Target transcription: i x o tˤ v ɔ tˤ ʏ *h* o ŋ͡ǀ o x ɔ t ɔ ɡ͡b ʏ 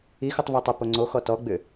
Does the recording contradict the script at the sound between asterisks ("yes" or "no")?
yes